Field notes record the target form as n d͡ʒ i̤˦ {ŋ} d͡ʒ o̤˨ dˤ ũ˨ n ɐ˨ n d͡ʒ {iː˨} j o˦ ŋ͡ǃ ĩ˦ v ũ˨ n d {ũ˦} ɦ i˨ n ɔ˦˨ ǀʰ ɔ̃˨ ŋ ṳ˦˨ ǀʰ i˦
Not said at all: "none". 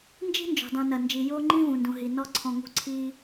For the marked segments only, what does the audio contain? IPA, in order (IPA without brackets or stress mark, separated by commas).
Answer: n, i˨, ũ˨